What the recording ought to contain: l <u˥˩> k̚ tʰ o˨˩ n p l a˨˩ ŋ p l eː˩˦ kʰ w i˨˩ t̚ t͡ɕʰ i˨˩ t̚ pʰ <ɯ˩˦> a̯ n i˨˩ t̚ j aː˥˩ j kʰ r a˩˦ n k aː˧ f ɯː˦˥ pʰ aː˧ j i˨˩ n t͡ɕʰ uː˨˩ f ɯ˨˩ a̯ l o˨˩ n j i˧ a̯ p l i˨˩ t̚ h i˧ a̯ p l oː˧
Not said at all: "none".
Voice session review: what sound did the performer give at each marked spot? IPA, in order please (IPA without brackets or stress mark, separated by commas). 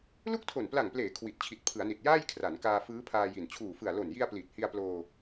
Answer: u˥˩, ɯ˩˦